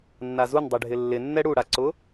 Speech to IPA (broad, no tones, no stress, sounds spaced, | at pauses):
nː a z u n dˤ ɛ ɖʱ ɪ lː ɪ nː ɛ ɽ u ɽ a ǀ ʊ